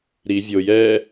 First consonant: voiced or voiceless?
voiced